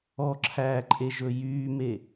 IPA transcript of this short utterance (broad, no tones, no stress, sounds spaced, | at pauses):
ɔ ǁʰ æː ǃʼ e ʒ ɵ j yː m e